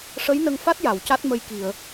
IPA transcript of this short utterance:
ʂə˧˥jnə˧ŋfa˦˥t̚ ja˨˩˨wca˦˥t̚mə˧j ki˨˩˨ə̯

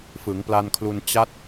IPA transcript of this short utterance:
fɯ˩˦ŋpla˧nkʰlu˧n t͡ɕa˦˥t̚

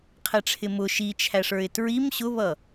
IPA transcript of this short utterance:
qʰɛʈ͡ʂʰɪmʊ ʃit͡ʃʰæʂə˞ɪ̯ tɹim ɕʊβʌ

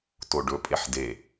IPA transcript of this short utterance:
toɖɵ pʼeħde

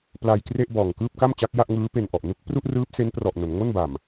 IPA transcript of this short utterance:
pla˧jkre˥˩ʔbɔː˨˩ŋ kɯː˥˩p̚ka˥˩m t͡ɕa˦˥k̚ja˥˩ʔŋɯː˦˥pe˧n ʔɔ˨˩ʔ nu˦˥k̚ pru˥˩ʔrɯː˦˥p̚se˦˥n prɔ˨˩ʔno˩˦nŋo˥˩nba˨˩m

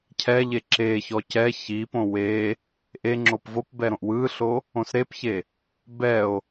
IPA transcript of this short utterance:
cʰɛʎe ǁeçɔ cɛ çipõ we | ʔeŋ͡ǁop vopbɛ ɾõʔwɯɬo | õsɾepçe | bɛo̯

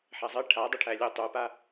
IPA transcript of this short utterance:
ħæzˤɘ ʈʰadˤəʈʰæ lʲutˤupa

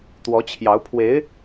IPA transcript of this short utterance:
t̪wɔ˧˥t͡ɕʰjɑ˧˥ʊ̯pʰwe˧˥ɪ̯

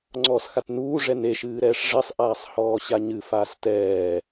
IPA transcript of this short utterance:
ŋ͡ǀɔːsxatnuː ʐɛne ʃɨːɾɛːʂʐesˤ ʔaːsˤhɔːɕaɲɨ faːstɛː

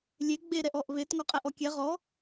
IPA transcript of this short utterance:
lʲe ɡ͡be ɾɛʔɔʔβet ŋɔqʼɛʔɔkʲɛ ʁɔ

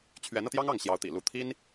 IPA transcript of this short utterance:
t͡ɕʰɥɛ˧˥nɤ˧t̪jɑ˥ŋ ɑ˥˩ŋɕjɑ˧˥ʊ̯t̪ḭ˨˩ lu˥˩ t̪ʰi˥n

